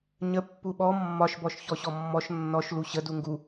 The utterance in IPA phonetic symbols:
ɲ ə pː u ɓ ɔ mː ɒ ʃ b ɔ ʃ ç ɔ ɕ ɔ mː ɔ ʃ nː ɔ ʃ l u ɕ ə d u ŋ ɡ u

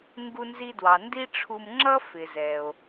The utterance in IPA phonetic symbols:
ŋ ɡ u˧ n z i˧ d w ɑ˩ n d i˥ ʈ͡ʂʰ u˧ m ŋ͡ǁ ʌ˥ f ɪ˩ z ɛ˩ o̯

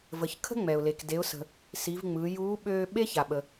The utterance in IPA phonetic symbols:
v ə˩˧ ç kʰ ə̤˥ ŋ͡m ɛ˩ ʊ̯ l e˩ k d e˩˧ ʊ̯ s ə̤˩ | s i˩˧ v ŋ͡m ɯː˩˧ j uː˧˥ ɓ øː˧ ɓ e˥ ç a˩ ɓ ə˩

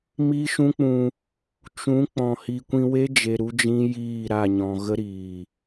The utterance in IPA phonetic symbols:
m i˦ ʃ ũ˦ k͡p ũ˧ | t͡ʃ ũ˨˦ k͡p ɔ̃˨ h i˨ kʷ ĩ˧ w e˦ d͡ʒ e˧ ɾ u˦ d͡ʒ ĩ˦ j iː˦˨ ɾ a˦˨ ɲ ɔ̃˨ ɣ ə˦ ɾ iː˨

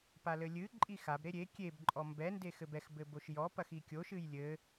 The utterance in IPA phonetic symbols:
p a l ɘ lʲ ɨ ǃʼ i x a b ɾ e ɾʲ e kʲ e b ǃʼ ɔ m b ɛ n d e x ɘ b ɛ x b ɘ b o ʃ j ɔ p ɐ x i kʲ o ʃ ɨ j lʲ ɘ

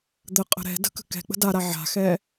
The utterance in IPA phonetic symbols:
d̪ ə qʼ ə̤ ɾ ɛ̤ d ə̤ k ə̤ k ɛ̤ k͡p ə̤ d a ɾ a ʕ a̤ x ɛ

